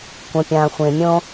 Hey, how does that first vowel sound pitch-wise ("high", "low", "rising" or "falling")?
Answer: low